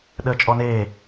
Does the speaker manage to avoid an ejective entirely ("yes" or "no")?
no